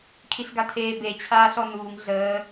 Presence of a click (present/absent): absent